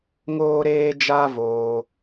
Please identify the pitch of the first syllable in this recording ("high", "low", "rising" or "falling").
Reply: high